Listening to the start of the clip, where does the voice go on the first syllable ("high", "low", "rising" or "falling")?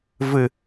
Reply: falling